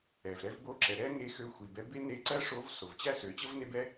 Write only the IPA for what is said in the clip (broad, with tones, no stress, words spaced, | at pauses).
ɛ˩vɾɛ˥vbo˥ǁɛ˩˧ ɾɛ˥ŋe˧˥ xø˧˥xʷi˩bɛ˧˥ be˥ne˧˥ǀɜ˥ʂo˧˥v so˩vt͡ɕæ˥sø˩˧t͡ɕə˥v ne˥bɛ˥